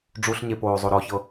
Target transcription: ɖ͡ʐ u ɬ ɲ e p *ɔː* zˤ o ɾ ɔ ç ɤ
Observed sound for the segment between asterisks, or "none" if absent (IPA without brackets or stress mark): oː